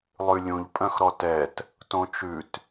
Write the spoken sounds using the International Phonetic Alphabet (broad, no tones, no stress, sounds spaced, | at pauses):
lˠ ʉ lʲ ũ ʎ pʼ œ̃ x ɾ ɔ t ɛ t | t õ t͡ʃ ʉ t